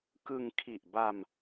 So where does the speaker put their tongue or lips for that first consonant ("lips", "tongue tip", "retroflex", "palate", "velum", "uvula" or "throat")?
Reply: velum